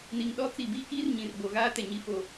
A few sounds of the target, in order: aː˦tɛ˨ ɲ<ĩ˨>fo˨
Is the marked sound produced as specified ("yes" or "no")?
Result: no